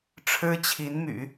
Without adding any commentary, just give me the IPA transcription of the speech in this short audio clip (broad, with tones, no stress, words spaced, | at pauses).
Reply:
ʈ͡ʂʰɻ̩˥t͡ɕʰi˧˥nmy̰˨˩˦